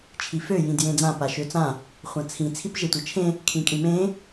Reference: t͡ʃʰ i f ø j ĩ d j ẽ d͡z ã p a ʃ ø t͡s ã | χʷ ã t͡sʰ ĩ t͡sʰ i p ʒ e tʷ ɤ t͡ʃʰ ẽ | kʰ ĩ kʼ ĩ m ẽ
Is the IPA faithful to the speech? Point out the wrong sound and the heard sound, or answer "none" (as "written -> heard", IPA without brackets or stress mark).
none